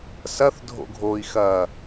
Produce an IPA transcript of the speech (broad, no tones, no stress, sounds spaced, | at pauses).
s ɐ θ dʱ o̰ ɡʱ o i̯ x ɐ